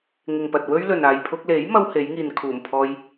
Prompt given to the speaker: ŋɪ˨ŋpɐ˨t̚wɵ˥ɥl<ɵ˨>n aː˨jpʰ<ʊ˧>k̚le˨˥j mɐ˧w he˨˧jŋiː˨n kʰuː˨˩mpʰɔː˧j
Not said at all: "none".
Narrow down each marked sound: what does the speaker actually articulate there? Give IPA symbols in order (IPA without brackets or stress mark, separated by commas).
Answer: ɵ˨, ʊ˧